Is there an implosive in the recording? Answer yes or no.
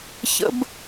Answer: no